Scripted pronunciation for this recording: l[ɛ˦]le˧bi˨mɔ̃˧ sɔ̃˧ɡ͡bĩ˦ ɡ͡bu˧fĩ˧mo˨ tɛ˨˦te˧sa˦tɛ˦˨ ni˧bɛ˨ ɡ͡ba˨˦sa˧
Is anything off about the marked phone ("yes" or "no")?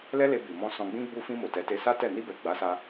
no